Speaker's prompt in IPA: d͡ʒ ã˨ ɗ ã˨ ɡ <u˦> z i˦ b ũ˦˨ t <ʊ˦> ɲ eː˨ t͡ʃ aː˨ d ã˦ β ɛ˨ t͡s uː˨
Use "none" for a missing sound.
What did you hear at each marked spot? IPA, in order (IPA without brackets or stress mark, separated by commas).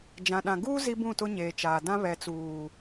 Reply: uː˦, ʊ˦